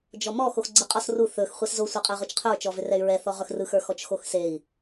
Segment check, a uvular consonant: present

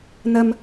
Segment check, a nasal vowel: absent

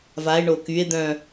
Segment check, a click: absent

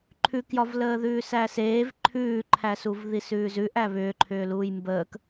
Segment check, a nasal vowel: absent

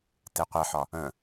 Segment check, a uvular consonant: present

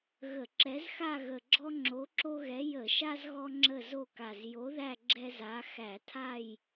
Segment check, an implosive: absent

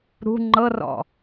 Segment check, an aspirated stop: absent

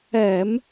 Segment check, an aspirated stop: absent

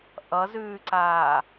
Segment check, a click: present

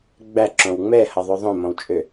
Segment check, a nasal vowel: present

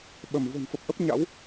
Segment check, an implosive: present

